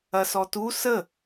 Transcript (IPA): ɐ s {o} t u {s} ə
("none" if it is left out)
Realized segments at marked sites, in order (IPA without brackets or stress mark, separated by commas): ɔ, s